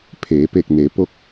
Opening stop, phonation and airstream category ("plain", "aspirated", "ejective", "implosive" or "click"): aspirated